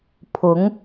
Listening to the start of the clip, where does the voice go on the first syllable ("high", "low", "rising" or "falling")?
rising